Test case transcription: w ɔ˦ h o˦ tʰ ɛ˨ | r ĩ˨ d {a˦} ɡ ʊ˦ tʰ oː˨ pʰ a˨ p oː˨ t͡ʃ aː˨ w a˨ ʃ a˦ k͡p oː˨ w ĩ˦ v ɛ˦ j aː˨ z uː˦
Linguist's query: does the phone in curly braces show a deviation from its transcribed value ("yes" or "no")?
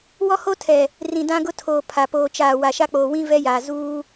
yes